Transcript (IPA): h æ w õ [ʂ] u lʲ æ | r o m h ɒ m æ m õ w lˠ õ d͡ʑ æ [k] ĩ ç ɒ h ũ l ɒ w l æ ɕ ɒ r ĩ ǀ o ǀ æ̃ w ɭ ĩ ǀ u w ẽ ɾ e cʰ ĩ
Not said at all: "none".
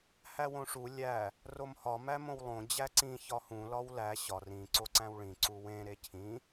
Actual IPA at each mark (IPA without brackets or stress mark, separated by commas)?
ʂ, ǀ